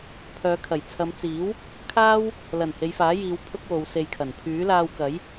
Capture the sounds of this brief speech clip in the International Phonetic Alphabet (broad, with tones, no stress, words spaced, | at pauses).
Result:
pʰœː˨˧kʰɐ˨˩jt͡sʰɐ˨˧m t͡siː˨˥w | kʰaː˥w | lɐ˨˩n he˨˧jfaː˨˥jiː˨˧w pʰʊ˥k̚wo˨˧w se˨jkʰɐ˨˩n pʰyː˨˥laː˧wkɐ˨˥j